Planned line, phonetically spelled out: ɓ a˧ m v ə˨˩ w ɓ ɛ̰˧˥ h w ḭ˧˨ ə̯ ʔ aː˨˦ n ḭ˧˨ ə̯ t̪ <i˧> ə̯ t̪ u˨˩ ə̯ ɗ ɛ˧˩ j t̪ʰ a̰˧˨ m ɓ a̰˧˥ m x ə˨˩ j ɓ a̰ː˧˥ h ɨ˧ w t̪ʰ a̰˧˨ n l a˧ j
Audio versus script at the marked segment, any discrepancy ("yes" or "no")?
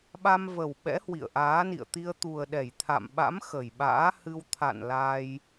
no